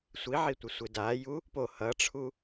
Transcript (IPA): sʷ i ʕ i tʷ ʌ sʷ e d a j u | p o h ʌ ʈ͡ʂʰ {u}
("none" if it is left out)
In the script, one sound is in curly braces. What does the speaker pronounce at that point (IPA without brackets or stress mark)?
u